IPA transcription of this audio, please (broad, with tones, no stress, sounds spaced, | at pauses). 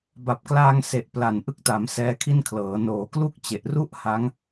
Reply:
b a˨˩ p̚ k l aː˧ ŋ s e˨˩ ʔ p l a˨˩ n ʔ ɯ˦˥ k̚ t a˩˦ m s ɛː˦˥ kʰ i˥˩ n kʰ l ɤː˩˦ n oː˩˦ k l u˥˩ k̚ t͡ɕ e˨˩ ʔ r u˥˩ ʔ h a˦˥ ŋ